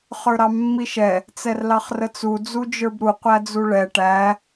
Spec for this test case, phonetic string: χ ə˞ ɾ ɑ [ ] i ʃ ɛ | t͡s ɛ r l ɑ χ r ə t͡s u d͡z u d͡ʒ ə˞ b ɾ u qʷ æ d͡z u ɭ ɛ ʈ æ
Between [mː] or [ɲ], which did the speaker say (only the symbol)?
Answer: mː